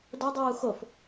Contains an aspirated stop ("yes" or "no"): no